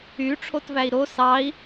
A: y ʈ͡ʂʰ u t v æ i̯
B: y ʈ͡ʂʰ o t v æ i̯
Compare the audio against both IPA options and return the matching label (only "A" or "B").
B